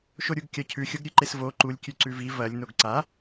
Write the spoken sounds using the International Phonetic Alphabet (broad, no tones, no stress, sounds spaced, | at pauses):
ʃ o ɾʲ u ɡ kʲ ɐ cʰ ʉ xʲ o ɡ ɾʲ ʉ ǃ e s v o ǃ u lʲ kʲ ʉ ǀ ʉ v i v ɐ lʲ n o ɡ ǀ a